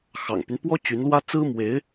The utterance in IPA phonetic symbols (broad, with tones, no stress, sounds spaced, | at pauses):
x ɑ̰˨˩ ŋ p y˦ n p w ɔ˥ t͡ɕ y˧˥ n l w ä˥ t͡s ɹ̩˥ m w e˧˥ ɪ̯